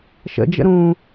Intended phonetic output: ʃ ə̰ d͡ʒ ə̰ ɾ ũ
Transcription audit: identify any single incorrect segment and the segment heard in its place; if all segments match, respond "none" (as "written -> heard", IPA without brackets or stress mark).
none